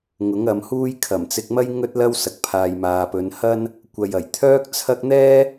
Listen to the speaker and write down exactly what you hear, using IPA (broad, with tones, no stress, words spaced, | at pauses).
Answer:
ŋʊ˨˥ŋɐ˨˧mhuː˥j kʰɐ˨˩mt͡sɪ˧k̚mɐ˥j ŋɵ˥t̚lɐ˥wsɐ˨k̚pʰaː˨j maː˨pɵ˨˧n hɐ˥n | kʷɐ˨j ɐ˨˩jt̪ʰœː˥k̚t͡sʰɐ˥k̚ n̪ɛː˥